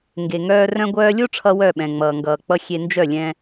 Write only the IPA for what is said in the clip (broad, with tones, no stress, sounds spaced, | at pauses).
ŋ ɡ e˨ ŋ œː˧ r œ̃˧ ɡʷ œː˧ lʲ o˦ ʈ͡ʂʰ ʌ˧ w œ˦˨ ɓ ɛ̃˨ ŋ͡m ʌː˨ ŋ ɡ ʌː˨ k͡p ʌ˧ xʲ e˧ n d͡ʒ œ˦˨ lʲ ɛ̃˧